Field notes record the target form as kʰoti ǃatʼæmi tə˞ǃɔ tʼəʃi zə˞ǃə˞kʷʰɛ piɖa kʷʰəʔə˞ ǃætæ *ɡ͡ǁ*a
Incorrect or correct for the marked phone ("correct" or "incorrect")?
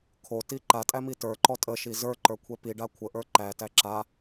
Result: incorrect